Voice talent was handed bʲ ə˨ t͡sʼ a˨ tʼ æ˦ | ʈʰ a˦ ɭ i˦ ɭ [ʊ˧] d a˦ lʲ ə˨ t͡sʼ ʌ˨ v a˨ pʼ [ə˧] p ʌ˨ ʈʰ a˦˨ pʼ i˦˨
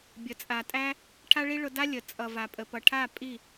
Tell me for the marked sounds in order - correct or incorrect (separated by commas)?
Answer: correct, incorrect